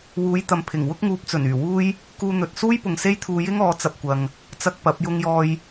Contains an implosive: no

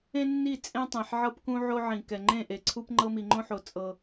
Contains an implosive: no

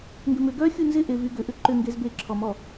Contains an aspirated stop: yes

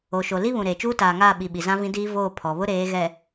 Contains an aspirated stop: yes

